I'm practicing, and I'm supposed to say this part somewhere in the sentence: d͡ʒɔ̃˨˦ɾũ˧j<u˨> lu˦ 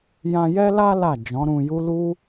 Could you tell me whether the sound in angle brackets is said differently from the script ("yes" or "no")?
yes